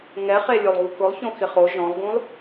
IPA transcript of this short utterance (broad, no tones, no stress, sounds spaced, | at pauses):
ŋ ɛ χ e lʲ o lˠ ɣ u k ʊ lˠ ç õ x ɪ χ o ʒ ɔ̃ lˠ ɡ ũ lˠ